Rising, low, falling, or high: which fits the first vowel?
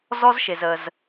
high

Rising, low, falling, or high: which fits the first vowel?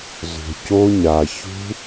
low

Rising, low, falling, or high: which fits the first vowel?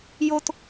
high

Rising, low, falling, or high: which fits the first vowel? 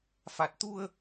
low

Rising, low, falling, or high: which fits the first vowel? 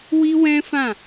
high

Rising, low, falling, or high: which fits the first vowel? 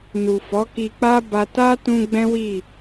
low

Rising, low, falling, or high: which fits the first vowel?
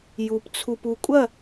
low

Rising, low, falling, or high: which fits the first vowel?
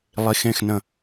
low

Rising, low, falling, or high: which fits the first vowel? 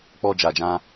low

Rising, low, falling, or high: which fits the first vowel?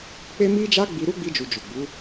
high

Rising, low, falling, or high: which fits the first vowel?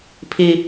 low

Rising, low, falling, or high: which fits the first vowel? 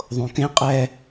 low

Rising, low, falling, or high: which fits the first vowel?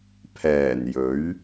low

